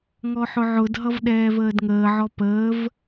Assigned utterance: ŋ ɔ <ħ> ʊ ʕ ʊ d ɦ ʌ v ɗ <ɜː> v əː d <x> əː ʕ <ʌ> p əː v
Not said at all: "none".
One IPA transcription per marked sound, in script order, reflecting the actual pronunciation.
ħ, ɛː, ŋ, ɔ

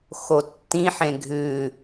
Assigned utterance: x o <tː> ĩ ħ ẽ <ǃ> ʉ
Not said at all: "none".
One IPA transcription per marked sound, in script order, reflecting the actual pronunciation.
tː, ɡʱ

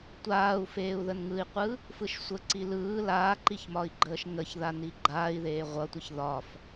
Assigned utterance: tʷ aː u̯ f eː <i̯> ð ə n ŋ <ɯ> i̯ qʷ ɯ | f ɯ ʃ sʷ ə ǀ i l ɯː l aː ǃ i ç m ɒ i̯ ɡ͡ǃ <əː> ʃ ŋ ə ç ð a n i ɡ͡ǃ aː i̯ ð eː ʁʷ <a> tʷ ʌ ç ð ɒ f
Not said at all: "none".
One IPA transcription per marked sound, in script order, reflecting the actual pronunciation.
u̯, ɯ, əː, ʌ

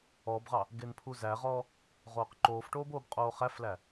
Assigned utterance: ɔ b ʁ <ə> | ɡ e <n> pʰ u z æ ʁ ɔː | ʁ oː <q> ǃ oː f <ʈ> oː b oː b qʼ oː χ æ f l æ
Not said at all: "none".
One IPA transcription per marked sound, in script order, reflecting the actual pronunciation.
ɑ, n, q, ʈ

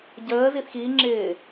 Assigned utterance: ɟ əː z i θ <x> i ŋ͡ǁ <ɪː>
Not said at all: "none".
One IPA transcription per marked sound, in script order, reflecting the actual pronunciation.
x, ɪː

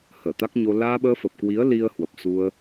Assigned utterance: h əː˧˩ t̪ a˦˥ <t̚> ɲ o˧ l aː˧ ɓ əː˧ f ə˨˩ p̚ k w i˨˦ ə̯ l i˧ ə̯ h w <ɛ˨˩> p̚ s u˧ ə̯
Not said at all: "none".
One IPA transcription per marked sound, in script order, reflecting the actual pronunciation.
k̚, ə˨˩

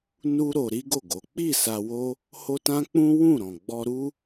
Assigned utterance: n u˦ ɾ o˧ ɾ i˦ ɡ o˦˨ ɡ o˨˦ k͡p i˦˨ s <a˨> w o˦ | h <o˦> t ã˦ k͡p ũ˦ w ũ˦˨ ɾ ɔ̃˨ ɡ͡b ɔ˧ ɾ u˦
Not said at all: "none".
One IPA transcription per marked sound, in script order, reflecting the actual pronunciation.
a˧, o˦

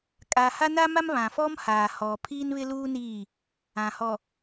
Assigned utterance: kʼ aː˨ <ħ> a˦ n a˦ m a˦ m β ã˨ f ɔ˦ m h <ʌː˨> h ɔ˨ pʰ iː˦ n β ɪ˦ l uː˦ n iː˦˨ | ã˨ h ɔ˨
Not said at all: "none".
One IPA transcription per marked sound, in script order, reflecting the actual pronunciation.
h, aː˨

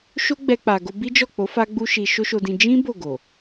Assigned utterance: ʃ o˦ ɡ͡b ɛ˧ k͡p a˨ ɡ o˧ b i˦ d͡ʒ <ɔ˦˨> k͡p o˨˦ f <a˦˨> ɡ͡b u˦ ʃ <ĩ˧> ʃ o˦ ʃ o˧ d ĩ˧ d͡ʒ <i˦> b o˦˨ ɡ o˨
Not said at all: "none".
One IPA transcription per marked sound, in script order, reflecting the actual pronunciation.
ɔ˦˨, a˦, i˧, ĩ˦

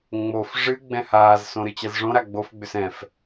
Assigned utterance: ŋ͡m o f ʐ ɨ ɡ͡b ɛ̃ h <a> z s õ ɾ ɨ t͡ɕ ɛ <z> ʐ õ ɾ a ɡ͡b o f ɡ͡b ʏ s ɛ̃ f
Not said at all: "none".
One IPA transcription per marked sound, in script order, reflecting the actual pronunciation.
aː, z

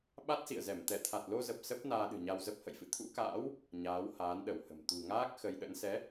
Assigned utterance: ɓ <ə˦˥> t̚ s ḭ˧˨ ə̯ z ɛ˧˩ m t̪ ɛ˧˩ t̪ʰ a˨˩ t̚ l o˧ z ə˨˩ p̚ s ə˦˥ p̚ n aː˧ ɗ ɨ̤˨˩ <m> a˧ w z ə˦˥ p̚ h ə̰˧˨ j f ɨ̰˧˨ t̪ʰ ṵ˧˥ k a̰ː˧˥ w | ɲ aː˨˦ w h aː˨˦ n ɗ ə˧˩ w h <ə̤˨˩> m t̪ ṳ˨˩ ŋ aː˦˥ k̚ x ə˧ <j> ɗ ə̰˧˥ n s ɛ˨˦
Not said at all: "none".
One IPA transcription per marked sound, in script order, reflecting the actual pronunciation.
a˦˥, ɲ, ə̤˨˩, j

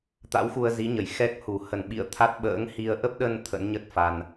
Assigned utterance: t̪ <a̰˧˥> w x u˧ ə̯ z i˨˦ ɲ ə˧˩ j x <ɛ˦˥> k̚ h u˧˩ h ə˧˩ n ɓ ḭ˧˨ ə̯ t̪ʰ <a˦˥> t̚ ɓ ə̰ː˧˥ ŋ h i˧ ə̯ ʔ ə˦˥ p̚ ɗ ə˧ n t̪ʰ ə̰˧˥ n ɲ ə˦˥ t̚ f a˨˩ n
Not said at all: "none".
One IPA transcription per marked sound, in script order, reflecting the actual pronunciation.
a̰˧˥, ɛ˦˥, a˦˥

